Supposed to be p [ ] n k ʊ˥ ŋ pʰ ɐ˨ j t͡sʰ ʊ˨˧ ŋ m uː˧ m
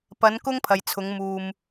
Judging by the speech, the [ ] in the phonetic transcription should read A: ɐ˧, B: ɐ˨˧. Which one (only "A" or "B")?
B